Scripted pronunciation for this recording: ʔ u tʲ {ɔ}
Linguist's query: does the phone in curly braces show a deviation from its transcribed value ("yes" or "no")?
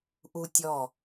no